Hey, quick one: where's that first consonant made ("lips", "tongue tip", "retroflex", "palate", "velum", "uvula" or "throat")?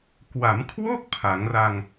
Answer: velum